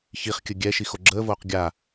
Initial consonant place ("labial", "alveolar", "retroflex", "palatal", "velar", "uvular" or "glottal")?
palatal